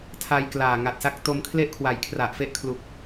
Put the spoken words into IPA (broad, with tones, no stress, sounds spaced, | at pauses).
tʰ a˧ j k l aː˨˩ ŋ a˨˩ t̚ s a˦˥ k̚ t o˧ m kʰ l e˥˩ ʔ kʰ w a˨˩ j kʰ r a˨˩ ʔ f e˦˥ ʔ kʰ l u˨˩ k̚